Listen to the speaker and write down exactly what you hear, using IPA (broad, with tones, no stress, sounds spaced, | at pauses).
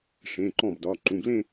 ʂ ẽ˩˧˩ ǃ ɔ̃˥˩ b d ɒ˩˧˩ ǃ ũ˩˧˩ b l ẽ˥˧